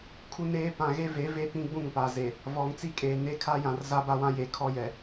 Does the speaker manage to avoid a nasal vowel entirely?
no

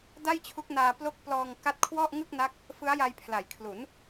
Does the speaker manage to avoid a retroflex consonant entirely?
yes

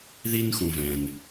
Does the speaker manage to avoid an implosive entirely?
yes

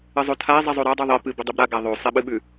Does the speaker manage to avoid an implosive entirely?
no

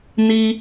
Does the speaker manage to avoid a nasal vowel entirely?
yes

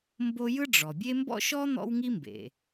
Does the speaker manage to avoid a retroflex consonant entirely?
no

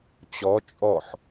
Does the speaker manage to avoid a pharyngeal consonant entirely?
no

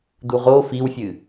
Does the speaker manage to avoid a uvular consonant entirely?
no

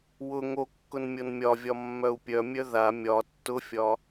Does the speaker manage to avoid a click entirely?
yes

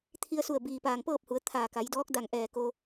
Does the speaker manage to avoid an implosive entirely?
yes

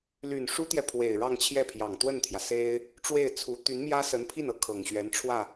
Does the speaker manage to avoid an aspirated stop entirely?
no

